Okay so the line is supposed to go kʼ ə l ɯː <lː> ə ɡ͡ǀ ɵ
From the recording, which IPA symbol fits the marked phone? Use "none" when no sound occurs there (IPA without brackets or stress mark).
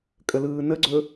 n